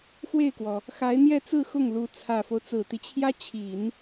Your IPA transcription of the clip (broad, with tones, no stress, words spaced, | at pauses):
xwe˥˩ɪ̯kwɔ˩ | xa˧˥ɪ̯n̪jɛ˥˧t͡sɹ̩˥˧ xʊ˥˩ŋlu˧˥ t͡sʰä˨˩fo˦ʊ̯ t͡sɹ̩˨˩t̪i˦t͡ɕʰjä˥t͡ɕʰi˨˩˦n